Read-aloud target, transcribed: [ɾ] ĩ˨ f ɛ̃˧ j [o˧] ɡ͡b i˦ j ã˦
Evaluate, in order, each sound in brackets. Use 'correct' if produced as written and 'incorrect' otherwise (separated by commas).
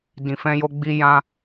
incorrect, correct